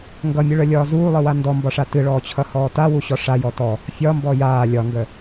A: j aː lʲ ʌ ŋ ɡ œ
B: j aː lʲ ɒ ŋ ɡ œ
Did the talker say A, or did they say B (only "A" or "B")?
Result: B